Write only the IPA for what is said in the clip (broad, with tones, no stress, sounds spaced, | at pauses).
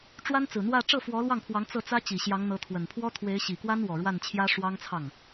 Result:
ʈ͡ʂ w a˥ n t͡s ɹ̩˨˩ n̪ w ä˥˧ ʈ͡ʂ ɤ˥˩ f w ɔ˧˥ l w ɑ˥˩ ŋ pʰ w ɑ˧˥ ŋ t͡s ɤ˥˩ t͡s ä˥ t͡ɕ i˨˩ ɕ j ɑ˧˥ ŋ n̪ ɤ˧˥ t̪ʰ w ə˨˩ n pʰ w ɔ˥ t̪ʰ w e˧˥ ɪ̯ ɕ i˨˩ k w a˥ n w ɔ˨˩ ɻ w a˥˩ n t͡ɕʰ j ä˥ ʂ w ɑ˥ ŋ t͡sʰ ɑ˥˩ ŋ